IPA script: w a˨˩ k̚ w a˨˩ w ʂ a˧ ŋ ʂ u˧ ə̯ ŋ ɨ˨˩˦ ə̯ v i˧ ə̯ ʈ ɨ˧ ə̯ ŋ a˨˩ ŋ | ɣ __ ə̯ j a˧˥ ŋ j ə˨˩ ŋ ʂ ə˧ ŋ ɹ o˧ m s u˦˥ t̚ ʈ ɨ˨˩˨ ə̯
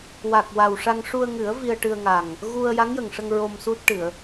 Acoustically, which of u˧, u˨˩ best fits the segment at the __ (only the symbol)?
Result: u˧